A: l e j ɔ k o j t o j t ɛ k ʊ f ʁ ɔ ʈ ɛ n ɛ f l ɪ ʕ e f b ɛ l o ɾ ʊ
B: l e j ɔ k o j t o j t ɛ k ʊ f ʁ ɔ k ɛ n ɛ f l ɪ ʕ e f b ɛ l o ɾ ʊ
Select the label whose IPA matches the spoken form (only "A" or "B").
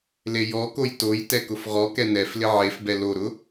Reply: B